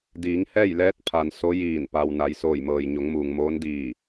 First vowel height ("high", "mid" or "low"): high